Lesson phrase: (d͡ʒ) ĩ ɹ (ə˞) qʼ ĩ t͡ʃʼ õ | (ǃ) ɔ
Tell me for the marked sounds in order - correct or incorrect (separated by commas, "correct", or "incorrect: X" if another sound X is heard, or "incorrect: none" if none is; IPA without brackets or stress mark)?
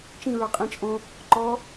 incorrect: t͡ʃ, correct, correct